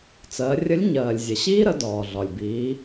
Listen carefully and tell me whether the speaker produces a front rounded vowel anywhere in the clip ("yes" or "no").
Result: no